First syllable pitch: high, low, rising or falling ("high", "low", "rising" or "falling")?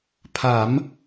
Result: rising